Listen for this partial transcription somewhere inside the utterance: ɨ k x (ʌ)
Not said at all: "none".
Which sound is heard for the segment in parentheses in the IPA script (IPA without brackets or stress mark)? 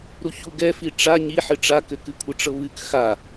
a